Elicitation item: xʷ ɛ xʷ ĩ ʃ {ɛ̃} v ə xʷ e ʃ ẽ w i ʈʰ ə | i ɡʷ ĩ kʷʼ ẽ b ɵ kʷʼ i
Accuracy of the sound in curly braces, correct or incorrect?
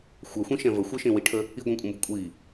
correct